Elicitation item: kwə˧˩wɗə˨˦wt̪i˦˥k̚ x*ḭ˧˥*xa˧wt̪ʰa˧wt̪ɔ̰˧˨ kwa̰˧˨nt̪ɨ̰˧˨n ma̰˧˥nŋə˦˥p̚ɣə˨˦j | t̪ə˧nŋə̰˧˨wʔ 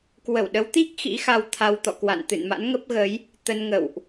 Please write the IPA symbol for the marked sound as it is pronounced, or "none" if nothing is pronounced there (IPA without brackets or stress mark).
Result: ḭ˧˥